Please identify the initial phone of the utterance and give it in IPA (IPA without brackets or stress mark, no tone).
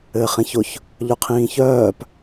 ɘː